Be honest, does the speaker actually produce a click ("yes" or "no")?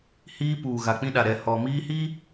no